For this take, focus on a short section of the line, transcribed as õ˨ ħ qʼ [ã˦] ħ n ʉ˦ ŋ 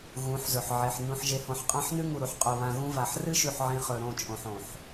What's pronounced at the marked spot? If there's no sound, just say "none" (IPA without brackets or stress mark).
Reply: ã˦